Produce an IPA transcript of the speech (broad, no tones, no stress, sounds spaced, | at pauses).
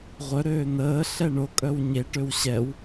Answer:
ʁʷ œ ɾ øː n̪ əː ɬ ɛ ɳ o kʼ œ w ɲ e ʈ ø w ɕ ɛ w